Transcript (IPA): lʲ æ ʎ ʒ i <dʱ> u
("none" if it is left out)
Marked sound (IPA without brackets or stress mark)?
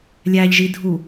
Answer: dʱ